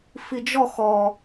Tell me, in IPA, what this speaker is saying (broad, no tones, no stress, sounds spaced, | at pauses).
f i d͡ʒ ɔ x ɔ